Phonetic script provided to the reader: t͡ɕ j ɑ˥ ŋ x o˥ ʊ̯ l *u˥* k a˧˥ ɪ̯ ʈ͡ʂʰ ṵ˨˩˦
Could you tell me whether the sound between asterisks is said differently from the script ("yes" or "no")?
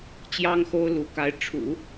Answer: yes